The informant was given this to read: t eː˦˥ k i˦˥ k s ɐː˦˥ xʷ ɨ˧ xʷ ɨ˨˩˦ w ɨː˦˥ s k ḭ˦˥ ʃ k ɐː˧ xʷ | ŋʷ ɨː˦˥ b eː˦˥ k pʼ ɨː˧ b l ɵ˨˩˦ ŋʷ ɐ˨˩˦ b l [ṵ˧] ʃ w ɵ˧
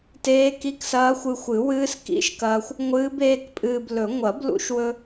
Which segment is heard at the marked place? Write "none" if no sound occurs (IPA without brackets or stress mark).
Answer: ṵ˧